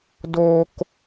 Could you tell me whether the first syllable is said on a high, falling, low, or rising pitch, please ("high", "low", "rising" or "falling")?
high